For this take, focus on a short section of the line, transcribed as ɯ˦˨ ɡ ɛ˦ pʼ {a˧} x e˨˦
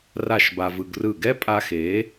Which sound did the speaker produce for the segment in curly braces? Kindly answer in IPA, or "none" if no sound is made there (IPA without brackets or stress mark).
a˧